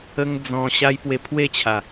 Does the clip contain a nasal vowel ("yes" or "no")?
yes